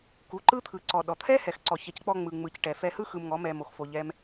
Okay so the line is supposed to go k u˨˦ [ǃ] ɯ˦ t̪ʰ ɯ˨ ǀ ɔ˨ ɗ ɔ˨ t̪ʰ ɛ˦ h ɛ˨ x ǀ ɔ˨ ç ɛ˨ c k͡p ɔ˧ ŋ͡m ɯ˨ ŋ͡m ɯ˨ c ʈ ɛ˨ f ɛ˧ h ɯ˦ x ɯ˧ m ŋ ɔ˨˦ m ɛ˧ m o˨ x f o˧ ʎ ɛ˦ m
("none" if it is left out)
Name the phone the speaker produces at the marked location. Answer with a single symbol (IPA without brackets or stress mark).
ǃ